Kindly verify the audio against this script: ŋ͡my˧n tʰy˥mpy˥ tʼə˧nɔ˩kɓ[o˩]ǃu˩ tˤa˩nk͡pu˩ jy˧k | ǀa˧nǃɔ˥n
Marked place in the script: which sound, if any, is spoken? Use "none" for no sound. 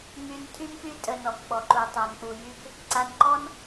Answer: ɔ˩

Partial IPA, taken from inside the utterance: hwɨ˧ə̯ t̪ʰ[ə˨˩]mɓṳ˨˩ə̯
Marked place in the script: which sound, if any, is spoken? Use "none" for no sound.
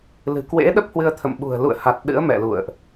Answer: ə̰˧˨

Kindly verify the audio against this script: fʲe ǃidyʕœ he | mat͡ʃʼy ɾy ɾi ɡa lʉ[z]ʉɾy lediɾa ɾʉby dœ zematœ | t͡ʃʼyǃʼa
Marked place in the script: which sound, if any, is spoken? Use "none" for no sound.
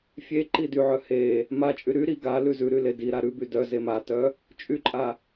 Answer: z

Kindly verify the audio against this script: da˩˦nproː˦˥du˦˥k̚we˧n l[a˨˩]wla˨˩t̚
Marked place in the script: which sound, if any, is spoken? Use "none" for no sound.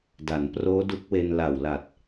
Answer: a˨˩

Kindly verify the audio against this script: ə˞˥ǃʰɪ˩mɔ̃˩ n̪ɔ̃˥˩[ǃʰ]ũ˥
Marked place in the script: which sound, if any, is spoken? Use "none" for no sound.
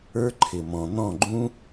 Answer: ɡ͡ǃ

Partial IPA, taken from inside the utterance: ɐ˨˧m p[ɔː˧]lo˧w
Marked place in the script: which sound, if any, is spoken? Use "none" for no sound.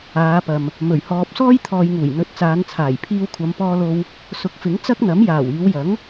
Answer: ɔː˧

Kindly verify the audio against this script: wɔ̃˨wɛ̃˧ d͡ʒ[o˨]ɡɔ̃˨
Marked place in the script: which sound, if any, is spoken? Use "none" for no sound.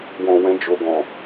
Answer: o˨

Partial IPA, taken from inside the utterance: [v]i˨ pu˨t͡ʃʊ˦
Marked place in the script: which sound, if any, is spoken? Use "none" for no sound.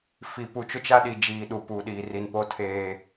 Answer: f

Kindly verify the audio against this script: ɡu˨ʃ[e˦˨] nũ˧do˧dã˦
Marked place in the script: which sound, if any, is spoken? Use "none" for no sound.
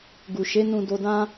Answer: e˨˦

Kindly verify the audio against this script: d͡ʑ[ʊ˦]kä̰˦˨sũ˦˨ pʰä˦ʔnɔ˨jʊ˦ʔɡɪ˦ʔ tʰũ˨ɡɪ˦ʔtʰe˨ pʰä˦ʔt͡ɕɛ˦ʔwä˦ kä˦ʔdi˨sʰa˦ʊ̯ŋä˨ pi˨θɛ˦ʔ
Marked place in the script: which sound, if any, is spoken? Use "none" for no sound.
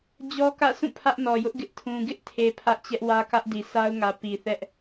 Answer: ɔ˦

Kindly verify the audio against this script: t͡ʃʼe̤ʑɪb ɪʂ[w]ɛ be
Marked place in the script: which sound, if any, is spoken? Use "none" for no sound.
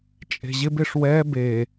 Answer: w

